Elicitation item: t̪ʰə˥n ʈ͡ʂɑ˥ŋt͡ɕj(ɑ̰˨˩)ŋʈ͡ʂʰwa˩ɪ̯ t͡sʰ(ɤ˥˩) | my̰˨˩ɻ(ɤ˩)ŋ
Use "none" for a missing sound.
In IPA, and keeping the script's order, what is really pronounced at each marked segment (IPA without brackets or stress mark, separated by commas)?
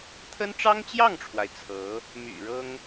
ɑ˥˩, ɤ˧˥, ɤ˥